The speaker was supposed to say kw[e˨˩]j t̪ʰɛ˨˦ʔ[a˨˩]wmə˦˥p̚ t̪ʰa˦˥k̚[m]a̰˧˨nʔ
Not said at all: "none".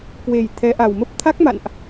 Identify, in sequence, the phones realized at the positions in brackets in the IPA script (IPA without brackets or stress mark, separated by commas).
e˨˩, a˨˩, m